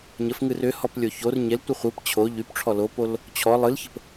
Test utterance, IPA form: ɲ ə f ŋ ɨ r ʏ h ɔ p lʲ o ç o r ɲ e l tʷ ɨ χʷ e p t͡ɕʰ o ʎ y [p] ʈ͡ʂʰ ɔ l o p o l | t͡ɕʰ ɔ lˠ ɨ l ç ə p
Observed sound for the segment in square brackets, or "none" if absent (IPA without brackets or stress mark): p